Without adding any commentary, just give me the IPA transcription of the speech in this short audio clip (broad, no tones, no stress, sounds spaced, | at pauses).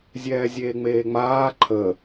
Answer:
zʲ ɛː zʲ eː ŋ͡m eː ŋ͡m aː ǃʰ ə